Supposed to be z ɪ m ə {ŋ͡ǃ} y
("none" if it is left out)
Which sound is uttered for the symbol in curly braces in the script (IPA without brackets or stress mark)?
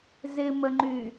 ŋ͡ǃ